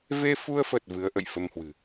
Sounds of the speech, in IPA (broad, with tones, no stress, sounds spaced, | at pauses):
v e˧ f u˧ ə̯ f ə˨˩ t̚ v ɨ˨˦ ə̯ ʔ ə̰˧˨ j f ə˧ m h w ɨ̤˨˩